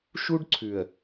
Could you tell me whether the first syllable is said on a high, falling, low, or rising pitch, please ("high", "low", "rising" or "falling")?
high